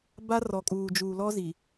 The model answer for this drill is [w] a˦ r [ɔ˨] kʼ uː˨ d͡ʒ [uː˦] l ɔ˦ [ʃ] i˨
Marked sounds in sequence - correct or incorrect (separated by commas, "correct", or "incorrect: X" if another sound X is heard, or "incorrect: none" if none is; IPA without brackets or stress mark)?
incorrect: b, correct, incorrect: uː˨, incorrect: z